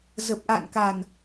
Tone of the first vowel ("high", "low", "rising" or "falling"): low